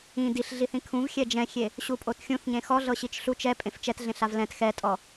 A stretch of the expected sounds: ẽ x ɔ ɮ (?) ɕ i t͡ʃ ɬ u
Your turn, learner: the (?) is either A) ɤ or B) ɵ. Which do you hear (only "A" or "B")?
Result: A